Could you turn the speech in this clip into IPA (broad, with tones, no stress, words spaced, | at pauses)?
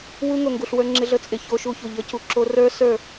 wu˧ ŋo˨ŋɡu˨ɬwə˞˧ ŋ͡ǁɪ˧ɮə˧t͡sʼɪ˨ ço˧ʃu˧çu˨ ʎə˨˦cu˨ǁo˧ rə˞˦ sə˞˦˨